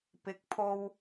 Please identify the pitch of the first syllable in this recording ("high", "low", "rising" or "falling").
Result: rising